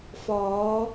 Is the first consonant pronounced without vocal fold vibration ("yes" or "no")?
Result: yes